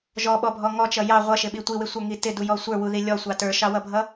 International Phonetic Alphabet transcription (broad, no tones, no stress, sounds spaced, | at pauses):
ʒ ɔ ɓ ɔ bʱ ɔ ŋ ɔ t͡ʃ ʌ j ɑ ʁʷ ʌ ʃ ɪ ɓ i tʷ i w ɪ sʷ ə˞ ŋ i t ɪ d u j ɔ sʷ ə˞ w u ð i lʲ ɔ sʷ ɑ t ə˞ ʃ ɑ w ʌ bʱ ʌ